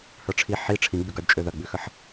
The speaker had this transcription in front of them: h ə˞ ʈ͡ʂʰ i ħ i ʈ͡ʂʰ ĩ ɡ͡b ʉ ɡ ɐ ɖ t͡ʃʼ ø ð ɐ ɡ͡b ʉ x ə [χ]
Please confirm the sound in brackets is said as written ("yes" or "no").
no